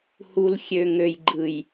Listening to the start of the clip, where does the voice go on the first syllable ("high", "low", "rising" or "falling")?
low